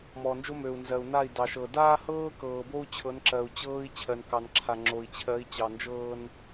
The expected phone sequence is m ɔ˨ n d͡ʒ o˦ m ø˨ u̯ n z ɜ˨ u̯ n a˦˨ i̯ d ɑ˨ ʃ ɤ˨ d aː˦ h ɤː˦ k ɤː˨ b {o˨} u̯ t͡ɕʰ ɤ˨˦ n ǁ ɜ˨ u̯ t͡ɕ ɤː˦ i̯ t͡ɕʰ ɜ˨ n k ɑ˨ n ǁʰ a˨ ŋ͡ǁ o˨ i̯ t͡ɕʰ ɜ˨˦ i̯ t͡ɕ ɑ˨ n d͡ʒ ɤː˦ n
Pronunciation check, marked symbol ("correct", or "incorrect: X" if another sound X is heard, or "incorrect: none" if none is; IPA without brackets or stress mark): incorrect: o˦